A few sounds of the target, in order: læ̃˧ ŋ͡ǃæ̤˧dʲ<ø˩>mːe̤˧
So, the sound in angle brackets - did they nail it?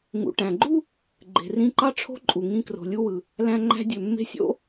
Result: yes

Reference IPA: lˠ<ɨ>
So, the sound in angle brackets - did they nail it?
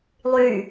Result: no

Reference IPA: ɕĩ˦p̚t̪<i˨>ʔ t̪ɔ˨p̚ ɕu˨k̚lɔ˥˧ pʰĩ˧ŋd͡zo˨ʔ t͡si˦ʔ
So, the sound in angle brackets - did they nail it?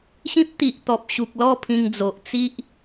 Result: yes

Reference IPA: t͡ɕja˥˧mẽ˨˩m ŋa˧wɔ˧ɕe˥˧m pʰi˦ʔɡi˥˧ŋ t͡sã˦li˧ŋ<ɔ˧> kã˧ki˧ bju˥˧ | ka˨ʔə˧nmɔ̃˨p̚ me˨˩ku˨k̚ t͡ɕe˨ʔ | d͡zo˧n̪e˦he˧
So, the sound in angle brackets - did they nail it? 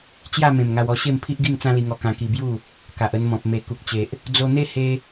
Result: yes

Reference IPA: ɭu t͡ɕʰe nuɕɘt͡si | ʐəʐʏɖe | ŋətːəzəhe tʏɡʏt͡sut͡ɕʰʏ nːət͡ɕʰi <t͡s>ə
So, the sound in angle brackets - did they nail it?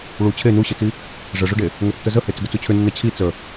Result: yes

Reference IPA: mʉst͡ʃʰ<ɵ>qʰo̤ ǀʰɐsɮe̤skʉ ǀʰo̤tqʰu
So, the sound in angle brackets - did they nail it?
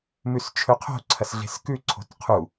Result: yes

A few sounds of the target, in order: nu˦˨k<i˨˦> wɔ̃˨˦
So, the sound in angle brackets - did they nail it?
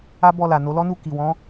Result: no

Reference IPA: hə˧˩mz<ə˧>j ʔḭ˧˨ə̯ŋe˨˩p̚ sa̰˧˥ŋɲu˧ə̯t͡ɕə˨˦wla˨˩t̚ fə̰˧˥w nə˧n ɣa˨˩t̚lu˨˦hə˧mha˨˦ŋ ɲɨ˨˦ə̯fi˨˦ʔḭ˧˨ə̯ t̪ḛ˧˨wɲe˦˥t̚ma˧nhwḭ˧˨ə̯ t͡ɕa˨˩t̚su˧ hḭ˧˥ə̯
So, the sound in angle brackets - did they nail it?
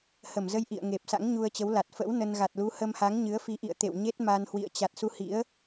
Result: yes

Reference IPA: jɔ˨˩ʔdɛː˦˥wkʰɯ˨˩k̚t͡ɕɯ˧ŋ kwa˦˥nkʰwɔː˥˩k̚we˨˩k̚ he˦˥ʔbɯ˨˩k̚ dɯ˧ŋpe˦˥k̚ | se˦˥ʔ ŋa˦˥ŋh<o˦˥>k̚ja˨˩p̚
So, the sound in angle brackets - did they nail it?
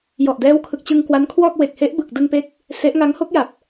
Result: yes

